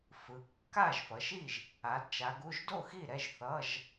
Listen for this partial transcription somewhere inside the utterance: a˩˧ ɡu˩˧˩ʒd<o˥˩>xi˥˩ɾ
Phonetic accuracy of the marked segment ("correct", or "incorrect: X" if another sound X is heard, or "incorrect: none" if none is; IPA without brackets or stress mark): correct